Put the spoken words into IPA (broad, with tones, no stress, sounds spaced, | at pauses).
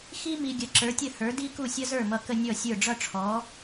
x i˥ m i˨ ɡʲ ə˩˥ ǁ ə˞˩˥ tʲ ə˥˩ h ə˞˩˥ d i˥ k u˥˩ sʲ ʌ˥ z ə˞˥˩ m ʌ˨ k ə˥˧ nʲ ɔ˥˩ sʲ ə˞˥˩ ɖ͡ʐ ʌ˥˧ ʈ͡ʂʰ ɔ˩˥